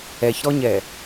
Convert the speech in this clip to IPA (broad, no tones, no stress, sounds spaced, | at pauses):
ɛ ç ɾ ɔ ɲ ɛ